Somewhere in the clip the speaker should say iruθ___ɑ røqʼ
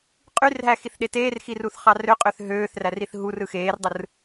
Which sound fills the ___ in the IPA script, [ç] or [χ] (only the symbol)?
χ